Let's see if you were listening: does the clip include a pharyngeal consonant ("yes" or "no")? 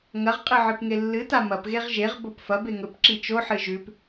yes